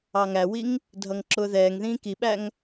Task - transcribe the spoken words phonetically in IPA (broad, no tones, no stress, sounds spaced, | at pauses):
ɑ ŋ æ w i ŋ | dʱ ʌ ŋ ǁ ʊː ð ɛː ŋ ð ĩː k i ɓ æ ŋ